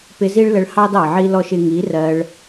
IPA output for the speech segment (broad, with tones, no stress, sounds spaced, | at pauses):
p ɪ˧ z i˦ ɭ l ə˧ ɭ h ɑ˦ d ɑ˨ ʕ i˦ l ɔ˦ ʃ ɪ˧ ŋ i˨˦ r ɜ˧ ɭ